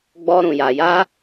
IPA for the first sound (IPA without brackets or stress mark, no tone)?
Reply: ɡ͡b